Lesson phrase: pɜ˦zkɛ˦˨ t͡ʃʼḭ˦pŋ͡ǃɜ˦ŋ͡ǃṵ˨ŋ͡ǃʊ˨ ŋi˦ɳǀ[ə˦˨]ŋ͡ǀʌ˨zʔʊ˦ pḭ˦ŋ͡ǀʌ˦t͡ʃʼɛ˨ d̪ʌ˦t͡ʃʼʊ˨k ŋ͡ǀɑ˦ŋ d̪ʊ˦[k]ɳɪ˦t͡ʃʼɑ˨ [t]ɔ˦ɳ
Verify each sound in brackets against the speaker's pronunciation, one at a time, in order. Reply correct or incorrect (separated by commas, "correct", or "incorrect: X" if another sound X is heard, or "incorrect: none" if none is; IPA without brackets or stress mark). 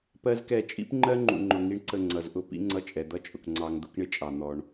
correct, correct, incorrect: n̪